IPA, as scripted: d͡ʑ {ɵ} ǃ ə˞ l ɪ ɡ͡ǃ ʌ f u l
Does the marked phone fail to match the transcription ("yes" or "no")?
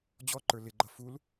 yes